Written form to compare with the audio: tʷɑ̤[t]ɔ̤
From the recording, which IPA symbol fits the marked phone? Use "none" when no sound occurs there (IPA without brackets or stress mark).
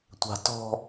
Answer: t